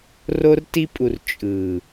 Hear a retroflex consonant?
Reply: no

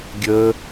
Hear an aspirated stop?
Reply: no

